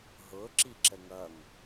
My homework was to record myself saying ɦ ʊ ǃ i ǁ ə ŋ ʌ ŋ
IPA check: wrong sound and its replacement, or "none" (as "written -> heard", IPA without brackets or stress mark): ǃ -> ǁ